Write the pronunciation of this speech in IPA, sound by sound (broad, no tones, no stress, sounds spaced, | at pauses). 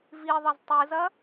v i ðˤ ɐ z tˤ ɨ z ɐ